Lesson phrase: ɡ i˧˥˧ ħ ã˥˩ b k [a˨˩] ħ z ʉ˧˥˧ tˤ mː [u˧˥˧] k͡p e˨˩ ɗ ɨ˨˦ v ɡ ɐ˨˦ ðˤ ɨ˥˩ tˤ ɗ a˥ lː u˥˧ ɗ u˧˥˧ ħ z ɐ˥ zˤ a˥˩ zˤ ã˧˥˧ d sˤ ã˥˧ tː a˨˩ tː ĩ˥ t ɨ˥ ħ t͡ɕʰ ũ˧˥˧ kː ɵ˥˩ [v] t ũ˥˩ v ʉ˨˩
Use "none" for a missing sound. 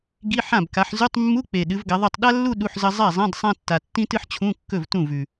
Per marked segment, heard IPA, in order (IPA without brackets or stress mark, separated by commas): a˨˦, u˧˥˧, v